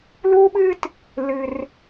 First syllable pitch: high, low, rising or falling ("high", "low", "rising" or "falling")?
high